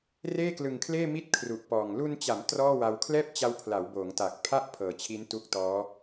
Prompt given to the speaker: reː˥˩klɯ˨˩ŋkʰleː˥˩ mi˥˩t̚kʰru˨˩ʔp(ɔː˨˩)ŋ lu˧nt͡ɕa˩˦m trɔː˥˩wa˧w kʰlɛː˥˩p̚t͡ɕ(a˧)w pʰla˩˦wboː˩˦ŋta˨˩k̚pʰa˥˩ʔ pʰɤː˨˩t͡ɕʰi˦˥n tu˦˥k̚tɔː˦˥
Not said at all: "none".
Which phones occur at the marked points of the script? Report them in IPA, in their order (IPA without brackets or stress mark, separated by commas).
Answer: ɔː˨˩, a˦˥